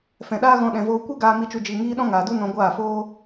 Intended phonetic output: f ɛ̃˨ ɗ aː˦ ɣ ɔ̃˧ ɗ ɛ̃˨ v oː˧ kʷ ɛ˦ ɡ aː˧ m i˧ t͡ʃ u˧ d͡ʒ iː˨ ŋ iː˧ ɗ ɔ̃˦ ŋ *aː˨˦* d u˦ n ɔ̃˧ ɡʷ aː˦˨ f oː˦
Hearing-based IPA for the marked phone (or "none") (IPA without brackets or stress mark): aː˨